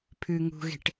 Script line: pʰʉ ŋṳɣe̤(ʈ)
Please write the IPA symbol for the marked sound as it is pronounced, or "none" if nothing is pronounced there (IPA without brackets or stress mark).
ʈ